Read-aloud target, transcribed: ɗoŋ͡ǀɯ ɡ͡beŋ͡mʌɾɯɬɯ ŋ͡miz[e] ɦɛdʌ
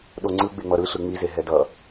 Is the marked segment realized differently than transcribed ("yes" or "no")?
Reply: no